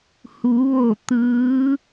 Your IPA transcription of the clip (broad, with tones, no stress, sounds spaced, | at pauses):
h u˩˧ ʋ o˧˩ t̪ ɯː˧˥